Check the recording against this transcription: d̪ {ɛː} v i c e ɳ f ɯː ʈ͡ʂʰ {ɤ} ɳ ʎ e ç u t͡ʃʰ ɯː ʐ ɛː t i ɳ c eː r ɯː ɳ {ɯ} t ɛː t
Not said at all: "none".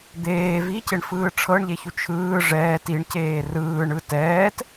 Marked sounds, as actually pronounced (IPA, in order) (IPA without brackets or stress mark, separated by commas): eː, ɤ, ɯ